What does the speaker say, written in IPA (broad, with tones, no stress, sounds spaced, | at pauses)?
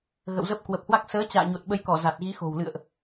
ɣ ə̰˧˨ w z ə˦˥ p̚ k w ə˨˩ p̚ h w a˦˥ k̚ s əː˨˦ t͡ɕ a̰ː˧˨ ɲ o˨˩ t̚ ɓ ə˨˦ j k ɔ˧˩ z a˨˩ t̚ ɣ i˨˦ x o̤˨˩ w l ɨ̰˧˨ ə̯ ʔ